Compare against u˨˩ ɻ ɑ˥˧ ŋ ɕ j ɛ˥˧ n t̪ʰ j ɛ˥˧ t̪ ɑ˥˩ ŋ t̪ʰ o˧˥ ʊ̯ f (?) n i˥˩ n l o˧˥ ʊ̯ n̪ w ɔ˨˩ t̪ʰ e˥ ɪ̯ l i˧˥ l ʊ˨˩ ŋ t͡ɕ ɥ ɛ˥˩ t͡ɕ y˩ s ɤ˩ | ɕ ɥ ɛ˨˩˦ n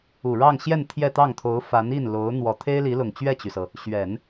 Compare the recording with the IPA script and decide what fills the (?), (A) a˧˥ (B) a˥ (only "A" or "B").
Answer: A